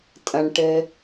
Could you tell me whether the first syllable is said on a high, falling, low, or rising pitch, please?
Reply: low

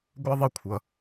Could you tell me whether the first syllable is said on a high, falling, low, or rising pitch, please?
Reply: high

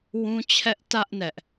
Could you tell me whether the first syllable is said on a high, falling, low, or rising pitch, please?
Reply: high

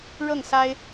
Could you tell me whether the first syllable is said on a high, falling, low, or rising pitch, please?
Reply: falling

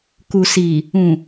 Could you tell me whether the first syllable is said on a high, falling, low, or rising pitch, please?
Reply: low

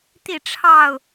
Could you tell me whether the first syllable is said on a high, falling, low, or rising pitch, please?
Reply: falling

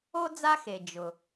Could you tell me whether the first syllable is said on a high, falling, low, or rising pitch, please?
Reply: high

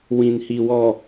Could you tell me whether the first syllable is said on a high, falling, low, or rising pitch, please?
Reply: low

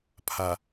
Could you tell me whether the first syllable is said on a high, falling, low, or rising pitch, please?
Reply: low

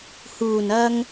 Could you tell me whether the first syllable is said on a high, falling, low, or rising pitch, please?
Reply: low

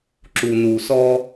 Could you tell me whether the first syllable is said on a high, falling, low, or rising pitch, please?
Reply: low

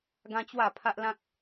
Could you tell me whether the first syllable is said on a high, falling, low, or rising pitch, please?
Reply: high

